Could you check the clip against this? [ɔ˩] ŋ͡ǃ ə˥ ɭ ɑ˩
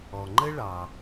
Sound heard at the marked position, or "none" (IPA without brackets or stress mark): ɔ˩